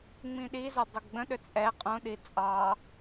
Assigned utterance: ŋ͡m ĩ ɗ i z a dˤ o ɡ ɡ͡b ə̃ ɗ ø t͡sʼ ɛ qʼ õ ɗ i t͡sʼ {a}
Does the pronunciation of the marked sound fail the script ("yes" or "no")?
yes